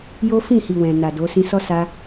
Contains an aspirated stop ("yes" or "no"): no